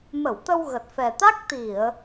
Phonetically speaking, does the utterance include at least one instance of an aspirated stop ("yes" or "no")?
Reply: no